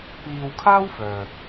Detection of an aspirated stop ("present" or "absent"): present